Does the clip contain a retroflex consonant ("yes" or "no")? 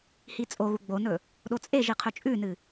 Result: no